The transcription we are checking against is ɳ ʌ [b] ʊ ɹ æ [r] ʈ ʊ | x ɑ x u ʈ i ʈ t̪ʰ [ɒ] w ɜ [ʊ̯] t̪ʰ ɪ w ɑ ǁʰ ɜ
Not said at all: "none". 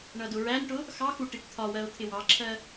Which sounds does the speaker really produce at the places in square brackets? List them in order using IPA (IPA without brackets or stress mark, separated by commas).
d, n, ɒ, ʊ̯